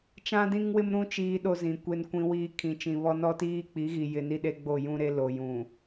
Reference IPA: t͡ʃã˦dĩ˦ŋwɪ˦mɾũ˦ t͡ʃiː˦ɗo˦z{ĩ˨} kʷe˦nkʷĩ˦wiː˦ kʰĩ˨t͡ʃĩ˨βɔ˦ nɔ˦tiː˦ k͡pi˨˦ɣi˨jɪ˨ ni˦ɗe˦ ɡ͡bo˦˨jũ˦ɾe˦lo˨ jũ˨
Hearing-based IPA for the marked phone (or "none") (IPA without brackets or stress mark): ĩ˨